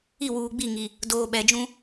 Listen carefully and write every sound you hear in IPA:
i˦˨wuː˨ɡ͡bi˦˨ ŋi˨ | doː˨ɓɛ˨d͡ʒũ˦

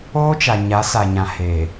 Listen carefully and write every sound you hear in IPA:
oː˦t͡ʃa˨ ɲa˨˦sa˨ɲã˨ heː˨

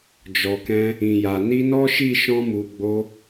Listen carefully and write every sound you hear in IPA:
d͡ʒɔ˨kɛ̃˧ | ĩ˨ja˨ ni˧nɔ˦ʃi˦˨ ʃɔ̃˧mu˨ɡ͡bo˧

